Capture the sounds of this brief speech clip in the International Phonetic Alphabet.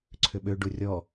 ǀʰʏɓø ɖurʲɔ

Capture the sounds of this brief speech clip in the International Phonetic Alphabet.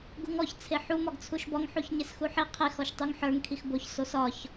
ɡuŋɔç t͡sʰeħu mɒɡt͡sʰuʃbɒŋ ħuçɲesxuħi qʰex ɔʃtˤuŋħə˞ŋ kʰixboç sosɒç

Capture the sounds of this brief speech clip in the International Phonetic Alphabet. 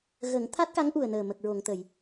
ɣə˨˩˦ŋ t̪ʰa˦˥t̚ka˧˥ŋʔu˨˩ə̯nəː˨˩ mə˨˩k̚ɹo˨˩˨ŋt̪ə˨˩˨j

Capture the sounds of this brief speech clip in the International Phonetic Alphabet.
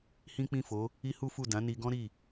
hĩ˦k͡pĩ˦˨fo˨˦ | i˦hu˦fu˦˨ dã˨˦ni˧ɡɔ̃˦ ɾi˦˨

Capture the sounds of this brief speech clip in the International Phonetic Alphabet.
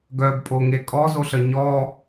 ɡœbpʼoŋe kʼɔzoɬə ɲɔ

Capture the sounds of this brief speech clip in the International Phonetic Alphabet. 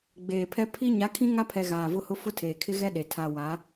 ɡ͡beː˨pʰɛ˦ pʰi˦ ɲa˨˦kʰĩ˦ŋa˦pʰɛ˨ ɣaː˨vʊ˦hʊ˦ fʊ˦tʰeː˨kʰɪ˦ɣɛ˦ ɗe˨ tʰa˨ wa˨˦

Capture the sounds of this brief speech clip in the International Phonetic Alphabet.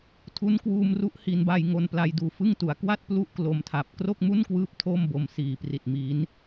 tʰu˦˥nkwuː˧mru˦˥ʔ hi˩˦n ba˧jŋo˧npla˧jduː˧ fɯ˥˩ŋtu˩˦a̯ kwa˥˩t̚ plu˥˩ʔklo˧mtʰa˨˩p̚ kro˥˩k̚mu˥˩nkwɯː˦˥p̚ tʰo˥˩mbo˧msiː˨˩pri˨˩t̚ mi˦˥n

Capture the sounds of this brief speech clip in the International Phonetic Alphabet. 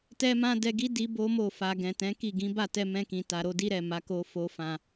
tɛ˦mã˦dɛ˧ɡi˦ di˦bo˦mo˦˨ fa˨ ɡɛ̃˨tɛ̃˨˦ki˦˨ ɡĩ˨˦ba˦˨tɛ˧ mɛ̃˧kĩ˨ta˨ ɾo˨˦di˦ɾɛ˦˨ ma˨˦ko˧fo˧ fã˨

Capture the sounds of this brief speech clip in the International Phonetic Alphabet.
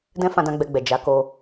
dɛ̃˦fã˧dã˧ ɡ͡bɛ˧ɡ͡bɛ˨ d͡ʒa˨˦ ko˧

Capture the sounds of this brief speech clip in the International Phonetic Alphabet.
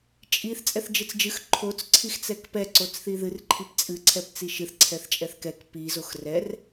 t͡ʃʼiθ t͡sʼɛθd͡ʒɨt͡sd͡ʒɨx ǃʰot͡s ǀʰixt͡sɛkpɛ ǀot͡sθiðɨr ǃʰipt͡sʼɨ ǀʰɛpt͡siʃɨθ ǀʰɛθt͡ʃʼɛθkɛk pi zoxrɛr

